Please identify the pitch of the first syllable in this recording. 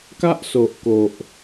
high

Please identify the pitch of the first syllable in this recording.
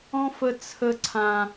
high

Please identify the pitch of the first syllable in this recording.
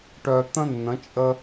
low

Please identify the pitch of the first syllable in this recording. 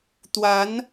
rising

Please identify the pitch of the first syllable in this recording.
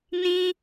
high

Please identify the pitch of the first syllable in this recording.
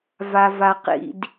low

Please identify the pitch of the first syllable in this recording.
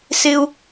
high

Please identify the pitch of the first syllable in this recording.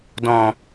low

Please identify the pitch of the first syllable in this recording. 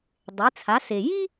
rising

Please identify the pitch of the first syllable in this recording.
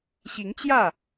rising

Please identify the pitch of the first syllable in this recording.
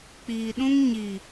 low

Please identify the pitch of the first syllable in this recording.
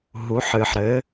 rising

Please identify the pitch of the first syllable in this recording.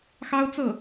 high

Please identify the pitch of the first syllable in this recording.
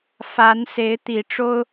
rising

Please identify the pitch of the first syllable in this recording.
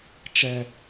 low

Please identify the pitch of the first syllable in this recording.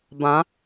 rising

